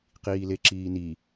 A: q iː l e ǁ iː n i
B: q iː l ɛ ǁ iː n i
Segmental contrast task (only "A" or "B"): A